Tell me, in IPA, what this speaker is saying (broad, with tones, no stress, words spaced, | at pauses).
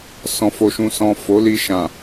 sɔ̃˨fo˨ʃũ˨sɔ̃˨ fo˨˦li˧ʃã˨